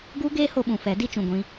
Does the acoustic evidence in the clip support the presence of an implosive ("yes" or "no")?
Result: yes